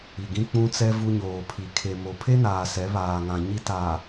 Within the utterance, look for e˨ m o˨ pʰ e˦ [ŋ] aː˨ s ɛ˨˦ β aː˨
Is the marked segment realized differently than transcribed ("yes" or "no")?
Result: yes